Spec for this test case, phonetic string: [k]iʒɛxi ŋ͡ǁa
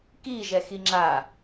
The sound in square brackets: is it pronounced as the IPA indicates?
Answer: yes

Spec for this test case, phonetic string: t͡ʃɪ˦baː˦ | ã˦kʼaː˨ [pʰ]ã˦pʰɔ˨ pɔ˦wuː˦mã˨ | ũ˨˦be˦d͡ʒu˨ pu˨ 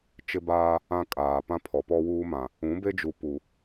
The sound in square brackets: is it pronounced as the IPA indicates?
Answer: no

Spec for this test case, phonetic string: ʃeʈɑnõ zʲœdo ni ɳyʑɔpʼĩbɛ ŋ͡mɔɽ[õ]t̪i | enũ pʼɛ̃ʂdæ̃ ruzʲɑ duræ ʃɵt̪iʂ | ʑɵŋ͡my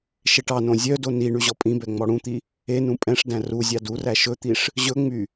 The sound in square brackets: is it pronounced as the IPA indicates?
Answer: no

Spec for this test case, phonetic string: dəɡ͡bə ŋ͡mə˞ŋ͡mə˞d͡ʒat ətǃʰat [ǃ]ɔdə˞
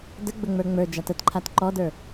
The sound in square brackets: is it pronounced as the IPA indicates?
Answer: yes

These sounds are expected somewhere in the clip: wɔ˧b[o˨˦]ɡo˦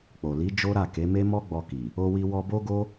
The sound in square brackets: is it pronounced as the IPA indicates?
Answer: no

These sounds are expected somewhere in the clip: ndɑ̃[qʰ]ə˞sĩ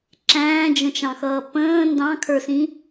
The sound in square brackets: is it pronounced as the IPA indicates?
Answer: no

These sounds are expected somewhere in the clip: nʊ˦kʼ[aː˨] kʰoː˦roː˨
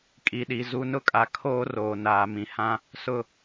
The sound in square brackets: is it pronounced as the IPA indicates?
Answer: no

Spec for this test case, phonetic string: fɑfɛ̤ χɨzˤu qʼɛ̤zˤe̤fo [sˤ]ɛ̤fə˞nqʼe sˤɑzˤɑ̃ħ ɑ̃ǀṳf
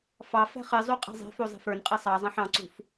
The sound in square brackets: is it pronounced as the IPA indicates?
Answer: no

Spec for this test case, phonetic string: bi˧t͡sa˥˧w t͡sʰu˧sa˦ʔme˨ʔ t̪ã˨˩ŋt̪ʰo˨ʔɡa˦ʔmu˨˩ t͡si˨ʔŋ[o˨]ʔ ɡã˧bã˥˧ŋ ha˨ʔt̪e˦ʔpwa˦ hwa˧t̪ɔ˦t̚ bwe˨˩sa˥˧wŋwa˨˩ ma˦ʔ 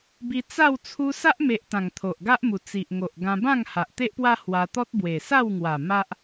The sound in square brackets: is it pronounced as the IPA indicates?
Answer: yes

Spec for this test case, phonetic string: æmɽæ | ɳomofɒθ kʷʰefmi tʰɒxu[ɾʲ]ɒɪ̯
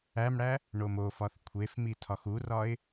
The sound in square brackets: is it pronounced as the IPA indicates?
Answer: no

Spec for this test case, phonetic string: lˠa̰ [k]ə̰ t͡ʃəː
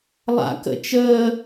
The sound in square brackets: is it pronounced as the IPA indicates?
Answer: yes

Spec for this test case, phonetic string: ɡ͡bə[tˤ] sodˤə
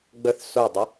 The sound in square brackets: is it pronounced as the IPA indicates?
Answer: no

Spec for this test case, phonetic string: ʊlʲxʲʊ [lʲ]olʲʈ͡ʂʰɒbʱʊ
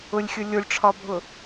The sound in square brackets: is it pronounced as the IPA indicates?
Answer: yes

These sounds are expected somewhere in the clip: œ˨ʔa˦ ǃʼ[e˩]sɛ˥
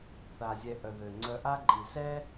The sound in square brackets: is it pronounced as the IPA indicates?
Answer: no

